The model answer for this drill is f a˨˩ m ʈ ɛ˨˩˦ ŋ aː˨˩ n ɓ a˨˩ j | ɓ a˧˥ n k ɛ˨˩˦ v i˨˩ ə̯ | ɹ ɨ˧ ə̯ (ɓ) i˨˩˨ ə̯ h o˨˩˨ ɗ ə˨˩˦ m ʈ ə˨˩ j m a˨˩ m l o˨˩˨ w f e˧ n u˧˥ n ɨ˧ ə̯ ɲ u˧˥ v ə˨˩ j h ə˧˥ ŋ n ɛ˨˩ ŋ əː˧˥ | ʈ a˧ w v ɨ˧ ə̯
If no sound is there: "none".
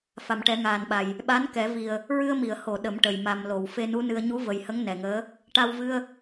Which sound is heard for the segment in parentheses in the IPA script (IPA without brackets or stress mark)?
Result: m